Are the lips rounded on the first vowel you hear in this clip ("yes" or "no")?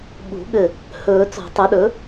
yes